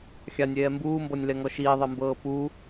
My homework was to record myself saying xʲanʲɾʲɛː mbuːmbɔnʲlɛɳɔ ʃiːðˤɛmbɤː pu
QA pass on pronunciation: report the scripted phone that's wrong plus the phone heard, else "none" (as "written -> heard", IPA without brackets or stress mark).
ɳ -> ŋ